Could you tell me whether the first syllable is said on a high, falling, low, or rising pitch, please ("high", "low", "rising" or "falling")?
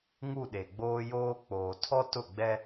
falling